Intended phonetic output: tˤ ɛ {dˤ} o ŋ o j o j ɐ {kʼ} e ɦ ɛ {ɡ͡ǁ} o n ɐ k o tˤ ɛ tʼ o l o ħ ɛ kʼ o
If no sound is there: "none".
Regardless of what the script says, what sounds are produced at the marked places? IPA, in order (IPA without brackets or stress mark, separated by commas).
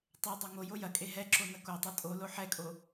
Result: dˤ, kʼ, ǁ